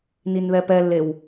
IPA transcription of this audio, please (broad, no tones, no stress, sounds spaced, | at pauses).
n i n ð ɛ p ɛ lː e w